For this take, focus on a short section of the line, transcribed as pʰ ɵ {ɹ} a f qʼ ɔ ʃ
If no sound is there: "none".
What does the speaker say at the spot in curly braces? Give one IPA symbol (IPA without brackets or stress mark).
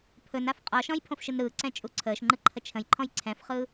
n